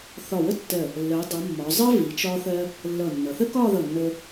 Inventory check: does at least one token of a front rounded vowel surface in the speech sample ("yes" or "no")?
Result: no